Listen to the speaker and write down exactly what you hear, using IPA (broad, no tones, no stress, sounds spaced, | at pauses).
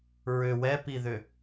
ɹ ʏ w ɛ p i ð ʏ